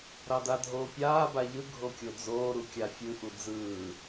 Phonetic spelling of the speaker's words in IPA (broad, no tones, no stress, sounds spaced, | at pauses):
ɾ ɑ d a dʱ oː pʲ aː b a ʎ ɯ ɡʱ o kʲ o d͡z oː ɾ u kʲ a fʲ ɯ ʔ u d͡z ɯː